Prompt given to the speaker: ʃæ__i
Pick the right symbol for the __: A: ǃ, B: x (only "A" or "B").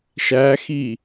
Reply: B